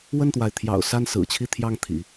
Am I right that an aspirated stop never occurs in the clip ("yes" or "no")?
no